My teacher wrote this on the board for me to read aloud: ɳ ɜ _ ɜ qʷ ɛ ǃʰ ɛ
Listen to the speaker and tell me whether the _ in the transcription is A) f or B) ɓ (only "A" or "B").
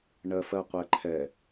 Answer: A